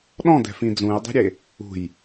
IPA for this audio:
ɗ ɔ̃ d ɛ̤ f ĩ d͡z ũ j dˤ ɛ̤ ɾʲ e | ṳ j

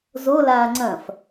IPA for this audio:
z o l aː ŋ͡ǀ ɐ̃ f

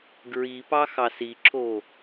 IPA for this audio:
ɡ ɹ i p ɑ x ɑ s i ǁ o

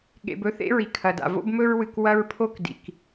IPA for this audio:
ɠ ḛ˨ b ɵ˦ θ ḛ˦ ɹ i˨ kʰ ɐ˨ d a̰˨ v o̰˦ b m ɵ˦ ɹ w ɨ˨ k w ɐ˦ ɹ pʰ o˦ k d ḭ˨ k

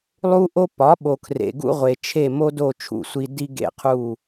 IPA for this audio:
lˠ u˦ ʔ o˦ p ɒ˩˥ ɓ o˨ kʰ r ḛ˨ ɡ ṵ˦ ʁʷ e˨ t͡ʃʰ e˦˨ m o˦ d o˦˨ t͡ʃʰ ṵ˦˨ sʷ i˦ d i˦ ɡ ḛ˦˨ qʰ u˦˨

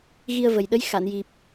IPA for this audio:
ɣ i˧ ə̯ v ə˨˩ j ɗ ə˧˥ j x a˨˩˨ n j i˨˩ p̚

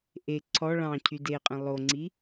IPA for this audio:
ʔ e ǀʰ ɔ ɭ ɑ̃ cʰ y d e qʼ ẽ lˠ o ŋ͡ǀ i

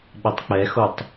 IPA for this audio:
ɓ ɘ tˤ k͡p ɛ x o tˤ

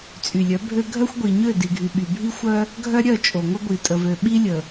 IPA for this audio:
t͡sʼ y˨ lʲ œ˨˦ bʱ ø˦ ɡʱ œ˦ xʷ ɡʷ i˨ ɲ ø˦˨ d i˨ ɡʱ y˨ ɓ y˨ bʱ i˦ xʷ œ˦ | ɡʱ œ˦ ɾʲ œ˦˨ t͡ʃʼ o˨ ŋʷ ə˦ ɡʷ i˨ tʼ ə˨ v ø˨ ɓ i˦ lʲ ə˨

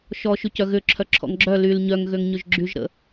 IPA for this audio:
ʃ ɔ ʃ y c œ ɣ ʏ ǁʰ œ ǁʰ ɔ̰ ŋ ɡ͡ǁ œ l y l ɲ œ ŋ ɣ ø ŋ ɲ ʏ ʒ ɡ͡ǁ y ʒ ɾ ə̰

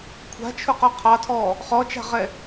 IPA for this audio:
kʷʰ a̤ t͡ʃʰ ʊ q ɔ qʰ ɑ tʰ ɔ | χ ɔ t͡ʃ a̤ ʁ ɛ

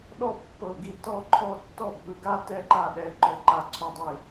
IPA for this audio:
ɗ ɔ˥˧ pː ɤ˧˩ ɡ i˥˩ t ɔ˥˧ ǃʰ ɔ˥˧ tː ɔ˥˩ bʱ ɯ˧˩ ɡ a˥˧ t ɛ˥˧ ǃ a˥˩ ɗ ɛ˧˩ ǃ ɔ˧˩ ǃ a˧˩ ǀʰ o˧˩ dˤ e˧˩

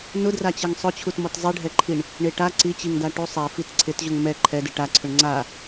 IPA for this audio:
n ʊ d r a t͡ɕ ɛ ŋ sˤ ʊ t͡ɕʰ u t m ɔ t zˤ i ɖʱ ɛ ǃʰ i ɳ | ɳ e ʈ a ǀ i t͡ɕ i ŋ d a ʈ u sˤ ɛ f i t ǀʰ ɪ t ʑ ʊ ŋ m ɛ ǃʰ ɛ d ɪ ʈ a ǀʰ ʊ ɳ ŋ͡ǀ a

